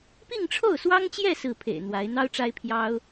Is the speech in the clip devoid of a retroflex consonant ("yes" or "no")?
no